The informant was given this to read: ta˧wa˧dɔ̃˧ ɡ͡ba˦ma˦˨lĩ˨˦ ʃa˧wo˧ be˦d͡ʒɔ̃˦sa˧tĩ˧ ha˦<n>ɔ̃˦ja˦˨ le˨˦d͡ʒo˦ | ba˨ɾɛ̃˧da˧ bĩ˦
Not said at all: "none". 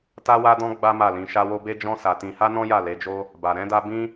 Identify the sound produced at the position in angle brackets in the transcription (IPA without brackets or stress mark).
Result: n